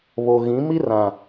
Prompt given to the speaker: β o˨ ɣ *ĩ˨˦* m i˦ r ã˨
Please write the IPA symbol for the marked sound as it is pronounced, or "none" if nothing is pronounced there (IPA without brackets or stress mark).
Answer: ĩ˨˦